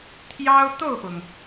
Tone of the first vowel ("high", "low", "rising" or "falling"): high